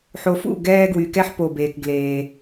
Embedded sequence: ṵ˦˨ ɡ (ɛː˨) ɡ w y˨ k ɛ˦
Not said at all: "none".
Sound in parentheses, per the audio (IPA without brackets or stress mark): ɛː˨